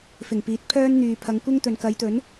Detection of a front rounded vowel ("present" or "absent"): present